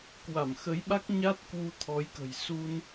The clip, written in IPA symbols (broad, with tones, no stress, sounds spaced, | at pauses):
k w a˧˩ m x ə˨˦ j ɓ a˦˥ k̚ ɲ a˦˥ t̚ k w u˧ t̪ʰ ɔ˨˦ j k ə̤˨˩ j s u˧ n